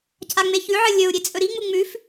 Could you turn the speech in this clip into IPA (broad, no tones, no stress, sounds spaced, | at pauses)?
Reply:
cʰ a ŋ͡m e ç ʉ ʕ ɨ lʲ ɵ u̯ ɾʲ e t͡sʼ ɵ ɾ i ŋ͡m u ŋ͡m ʉ f